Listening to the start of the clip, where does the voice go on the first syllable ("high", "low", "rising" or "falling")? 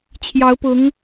rising